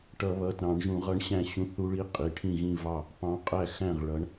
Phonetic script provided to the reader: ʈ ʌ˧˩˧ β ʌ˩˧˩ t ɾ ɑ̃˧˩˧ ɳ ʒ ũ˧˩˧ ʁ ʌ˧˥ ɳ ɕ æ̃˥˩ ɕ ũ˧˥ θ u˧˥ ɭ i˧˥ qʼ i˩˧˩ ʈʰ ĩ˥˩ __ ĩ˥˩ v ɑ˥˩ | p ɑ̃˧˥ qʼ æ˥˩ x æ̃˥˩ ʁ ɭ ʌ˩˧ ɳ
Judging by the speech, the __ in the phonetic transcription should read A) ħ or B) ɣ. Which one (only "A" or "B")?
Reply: B